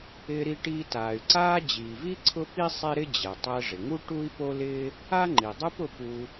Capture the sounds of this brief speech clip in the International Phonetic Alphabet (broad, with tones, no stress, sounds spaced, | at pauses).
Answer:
ɪː˧ ɾ i˧ ʈ iː˧ t aː˩ y̯ ǀ aː˥ d͡ʑ iː˩ v i˥ ǀʰ ʊ˥ p i˥ sˤ e˥ ɾ ɪ˥ d͡ʑ ɛ˩ tˤ ɛ˧ ʐ ɪ˩ ŋ u˥ ʈ u˥ i̯ p o˥ l ɪː˥ | a˥ ŋ͡ǃ i˩ dˤ u˥ p ʊ˧ p u˧